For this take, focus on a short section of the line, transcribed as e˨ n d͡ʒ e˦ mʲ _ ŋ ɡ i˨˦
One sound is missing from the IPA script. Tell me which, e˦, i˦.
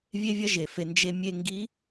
e˦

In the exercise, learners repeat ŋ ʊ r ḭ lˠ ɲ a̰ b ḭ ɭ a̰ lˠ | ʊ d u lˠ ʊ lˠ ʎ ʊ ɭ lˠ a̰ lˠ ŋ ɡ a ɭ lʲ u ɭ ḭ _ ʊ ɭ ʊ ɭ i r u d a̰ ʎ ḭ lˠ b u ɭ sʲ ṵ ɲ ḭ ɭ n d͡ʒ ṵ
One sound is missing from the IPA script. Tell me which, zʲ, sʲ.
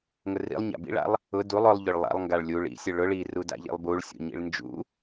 sʲ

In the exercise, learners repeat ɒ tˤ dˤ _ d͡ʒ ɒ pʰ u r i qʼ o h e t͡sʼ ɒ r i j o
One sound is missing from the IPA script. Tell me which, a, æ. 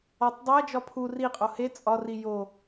æ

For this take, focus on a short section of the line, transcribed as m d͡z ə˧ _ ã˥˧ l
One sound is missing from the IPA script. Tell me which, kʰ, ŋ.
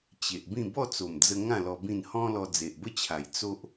ŋ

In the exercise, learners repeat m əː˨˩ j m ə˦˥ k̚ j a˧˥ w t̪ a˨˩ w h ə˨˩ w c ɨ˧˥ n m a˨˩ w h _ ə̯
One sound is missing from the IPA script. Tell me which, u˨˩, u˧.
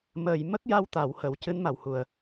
u˨˩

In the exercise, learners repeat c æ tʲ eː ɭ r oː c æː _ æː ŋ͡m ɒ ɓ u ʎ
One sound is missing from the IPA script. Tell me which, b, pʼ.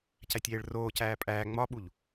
pʼ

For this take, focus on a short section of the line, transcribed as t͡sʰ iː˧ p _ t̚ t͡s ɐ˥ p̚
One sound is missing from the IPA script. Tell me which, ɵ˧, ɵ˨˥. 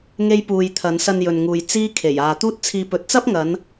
ɵ˨˥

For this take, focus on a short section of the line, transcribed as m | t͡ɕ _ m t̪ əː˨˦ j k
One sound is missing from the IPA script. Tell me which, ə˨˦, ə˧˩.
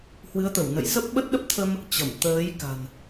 ə˧˩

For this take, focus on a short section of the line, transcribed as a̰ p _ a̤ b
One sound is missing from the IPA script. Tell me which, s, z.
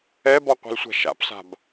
s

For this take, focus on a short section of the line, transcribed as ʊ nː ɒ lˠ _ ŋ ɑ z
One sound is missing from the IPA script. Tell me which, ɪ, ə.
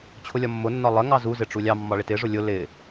ə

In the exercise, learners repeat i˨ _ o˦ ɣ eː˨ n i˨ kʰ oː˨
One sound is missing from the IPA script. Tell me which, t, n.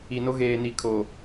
n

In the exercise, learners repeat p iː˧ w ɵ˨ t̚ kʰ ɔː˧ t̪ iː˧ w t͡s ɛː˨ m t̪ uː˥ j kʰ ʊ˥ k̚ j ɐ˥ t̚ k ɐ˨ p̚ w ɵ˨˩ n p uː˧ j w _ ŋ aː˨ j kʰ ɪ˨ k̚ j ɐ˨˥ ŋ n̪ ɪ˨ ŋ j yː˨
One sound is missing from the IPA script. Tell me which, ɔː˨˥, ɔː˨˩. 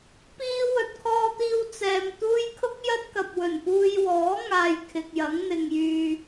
ɔː˨˥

